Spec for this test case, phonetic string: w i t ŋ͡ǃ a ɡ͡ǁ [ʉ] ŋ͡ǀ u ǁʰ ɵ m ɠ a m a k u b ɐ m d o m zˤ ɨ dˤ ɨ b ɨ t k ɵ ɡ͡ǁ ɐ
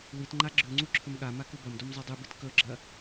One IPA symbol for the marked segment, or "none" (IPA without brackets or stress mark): ʉ